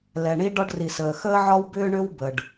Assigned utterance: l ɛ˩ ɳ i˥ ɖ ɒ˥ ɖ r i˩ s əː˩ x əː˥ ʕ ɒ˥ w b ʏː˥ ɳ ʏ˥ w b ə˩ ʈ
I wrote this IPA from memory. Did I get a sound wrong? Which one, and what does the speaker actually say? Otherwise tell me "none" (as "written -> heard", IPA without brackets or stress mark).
ʈ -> ɖ